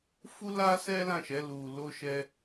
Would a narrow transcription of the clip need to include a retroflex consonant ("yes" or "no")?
no